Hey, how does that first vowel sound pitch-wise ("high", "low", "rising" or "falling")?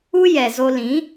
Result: high